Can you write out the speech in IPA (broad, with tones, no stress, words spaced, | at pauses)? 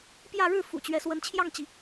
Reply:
pjä˥˧ ɻɻ̩˥˩ fṵ˨˩t͡ɕɥɛ˧˥swə˧˥n t͡ɕʰjɑ˥˩ŋt͡ɕi˩